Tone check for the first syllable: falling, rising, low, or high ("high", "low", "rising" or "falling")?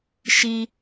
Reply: low